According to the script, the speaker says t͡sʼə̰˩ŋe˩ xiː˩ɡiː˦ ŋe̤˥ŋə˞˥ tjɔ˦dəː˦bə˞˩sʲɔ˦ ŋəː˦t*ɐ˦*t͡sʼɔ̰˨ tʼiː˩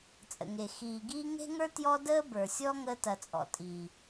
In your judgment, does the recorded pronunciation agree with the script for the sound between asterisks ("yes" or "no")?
no